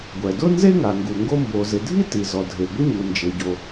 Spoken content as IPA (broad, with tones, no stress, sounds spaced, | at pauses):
ɡʷ ɛ˩ d ʊ˥ n z e˥ ŋ a˩ ŋ ɡ u˩ ŋ ɡ o˥ m b o˩ z ɪ˩ dʱ i˥ t i˩ z ɔ˩ dʱ e˩ ɡʷ ɪ˥ ɲ u˩ n d͡ʒ e˩ ɟ o˩